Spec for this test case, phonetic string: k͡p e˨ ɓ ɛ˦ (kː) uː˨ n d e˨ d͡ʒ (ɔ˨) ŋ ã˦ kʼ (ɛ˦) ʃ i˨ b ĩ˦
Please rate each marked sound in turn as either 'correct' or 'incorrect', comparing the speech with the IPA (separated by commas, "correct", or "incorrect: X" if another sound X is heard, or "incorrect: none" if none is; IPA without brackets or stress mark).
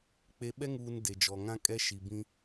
incorrect: ŋ, correct, correct